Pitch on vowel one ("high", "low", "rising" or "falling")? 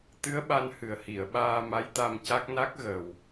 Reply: rising